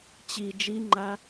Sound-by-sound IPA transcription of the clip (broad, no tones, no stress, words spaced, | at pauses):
t͡ɕi d͡ʒiŋ͡ǃa